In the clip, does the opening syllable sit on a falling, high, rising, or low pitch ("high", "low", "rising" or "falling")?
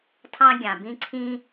high